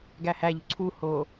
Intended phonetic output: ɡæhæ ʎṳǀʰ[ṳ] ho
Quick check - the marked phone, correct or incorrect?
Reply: incorrect